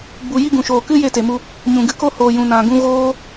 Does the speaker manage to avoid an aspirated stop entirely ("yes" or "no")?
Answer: yes